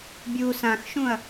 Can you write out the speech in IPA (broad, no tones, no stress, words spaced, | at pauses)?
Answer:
bʲu sãxʃũɐ̯